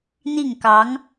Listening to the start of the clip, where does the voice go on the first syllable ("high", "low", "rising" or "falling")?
falling